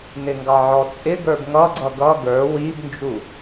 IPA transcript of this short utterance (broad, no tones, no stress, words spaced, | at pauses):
nɪŋɡɑʕɔt͡sʼɪ ɡə˞bŋʌɡ͡ǀʌ ɡʌ ɡə˞ wibnd͡ʒu